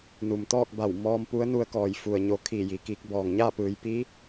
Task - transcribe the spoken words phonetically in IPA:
n u˩ m t̪ ɔː˥˨ k̚ b a˧˩ w m ɔː˧ m p u˧˥ ə̯ n u˧ ə̯ k ɔː˧˩ j f u˩ ə̯ ɲ o˩˧ kʰ iː˧˩ j i˩ k iː˧ k̚ b ɔː˩ ŋ ɲ aː˥˨ p ɯː˩˧ j p iː˧˥

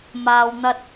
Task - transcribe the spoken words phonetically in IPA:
m aː˧ w n̪ ɐ˥ t̚

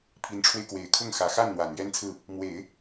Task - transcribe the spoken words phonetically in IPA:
pʰ i˧˥ n ʈ͡ʂʰ w e˧ ɪ̯ k w e˨˩ ɪ̯ kʰ ʊ˥˩ ŋ x ä˨˩ x a˥˩ n n̪ w a˨˩ n ɥ ɛ˥ n t͡sʰ ɹ̩˥˩ | m w e˨˩˦ ɪ̯

